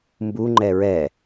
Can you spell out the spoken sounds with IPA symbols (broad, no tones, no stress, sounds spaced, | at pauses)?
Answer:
m b u ŋ͡ǃ ɛ ɹ ɛ